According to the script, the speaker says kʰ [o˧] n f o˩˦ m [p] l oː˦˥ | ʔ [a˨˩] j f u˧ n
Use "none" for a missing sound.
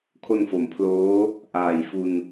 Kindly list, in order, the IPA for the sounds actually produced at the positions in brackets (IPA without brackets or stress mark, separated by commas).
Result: o˧, pʰ, aː˨˩